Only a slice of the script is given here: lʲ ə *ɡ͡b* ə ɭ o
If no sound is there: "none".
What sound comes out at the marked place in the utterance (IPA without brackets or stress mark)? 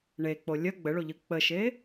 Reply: ɡ͡b